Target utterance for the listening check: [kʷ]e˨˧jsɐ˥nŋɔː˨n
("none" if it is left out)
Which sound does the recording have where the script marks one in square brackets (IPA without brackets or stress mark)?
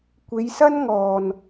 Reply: kʷ